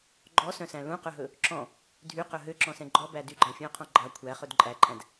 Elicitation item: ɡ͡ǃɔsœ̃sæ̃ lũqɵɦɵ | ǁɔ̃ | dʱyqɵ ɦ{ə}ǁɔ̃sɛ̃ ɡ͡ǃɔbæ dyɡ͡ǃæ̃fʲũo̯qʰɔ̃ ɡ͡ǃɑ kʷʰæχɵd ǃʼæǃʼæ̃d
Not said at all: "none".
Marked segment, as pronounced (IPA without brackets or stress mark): ø